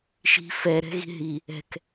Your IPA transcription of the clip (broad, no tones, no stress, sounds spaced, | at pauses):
ʃ i̤ f ɛ ɾ ɛ̤ ɣ i̤ ɦ i | ɛ̤ k